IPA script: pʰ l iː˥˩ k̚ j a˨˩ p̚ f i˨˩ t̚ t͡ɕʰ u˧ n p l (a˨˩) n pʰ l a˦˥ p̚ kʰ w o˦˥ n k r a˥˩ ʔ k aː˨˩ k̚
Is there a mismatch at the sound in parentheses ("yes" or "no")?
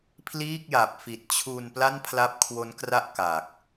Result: yes